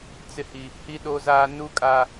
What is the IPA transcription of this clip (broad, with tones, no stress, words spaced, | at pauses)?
t͡sɪ˨hi˨ | hi˨ɗo˨zaː˨ nu˨kʼa˨